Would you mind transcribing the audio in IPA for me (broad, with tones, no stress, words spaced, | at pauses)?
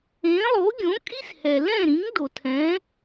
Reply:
ẽ˩˥ lˠo˩˥ɡʲõ˩˥ kʼi˥shɛ˩lɛ̃˥˩ɾĩ˩˥ŋ do˩tʰɛ̃˩˥